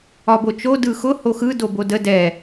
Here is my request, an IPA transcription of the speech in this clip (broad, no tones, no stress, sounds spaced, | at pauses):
ɒ b o t͡ʃ o d ɯ x ʊ h o x ɯ d o b o d ə d ɛ